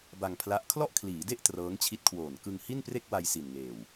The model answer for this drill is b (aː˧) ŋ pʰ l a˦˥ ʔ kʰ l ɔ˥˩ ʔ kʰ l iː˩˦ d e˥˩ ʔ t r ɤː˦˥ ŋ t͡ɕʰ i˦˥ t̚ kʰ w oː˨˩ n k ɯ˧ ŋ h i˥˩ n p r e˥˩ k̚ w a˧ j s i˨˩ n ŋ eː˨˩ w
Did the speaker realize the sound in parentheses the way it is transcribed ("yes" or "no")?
no